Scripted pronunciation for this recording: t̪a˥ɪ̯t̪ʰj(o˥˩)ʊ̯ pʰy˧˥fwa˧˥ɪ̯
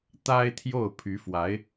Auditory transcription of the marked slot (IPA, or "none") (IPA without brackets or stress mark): o˥˩